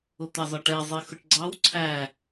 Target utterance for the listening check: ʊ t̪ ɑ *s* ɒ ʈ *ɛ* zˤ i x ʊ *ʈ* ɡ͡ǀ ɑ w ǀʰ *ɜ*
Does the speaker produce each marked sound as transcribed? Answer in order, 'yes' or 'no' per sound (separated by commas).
no, yes, yes, no